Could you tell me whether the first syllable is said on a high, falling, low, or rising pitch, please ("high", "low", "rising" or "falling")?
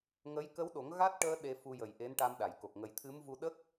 rising